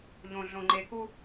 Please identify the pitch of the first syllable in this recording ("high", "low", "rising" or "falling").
low